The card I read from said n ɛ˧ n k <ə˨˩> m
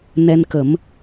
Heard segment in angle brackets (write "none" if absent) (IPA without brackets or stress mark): ə˨˩˦